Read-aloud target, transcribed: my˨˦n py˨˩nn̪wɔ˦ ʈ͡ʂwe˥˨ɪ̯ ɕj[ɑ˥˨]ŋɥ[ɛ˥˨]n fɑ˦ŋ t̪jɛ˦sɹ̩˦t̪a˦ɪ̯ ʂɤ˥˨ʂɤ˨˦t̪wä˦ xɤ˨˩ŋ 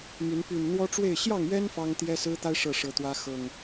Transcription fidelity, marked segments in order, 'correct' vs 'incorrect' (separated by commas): correct, incorrect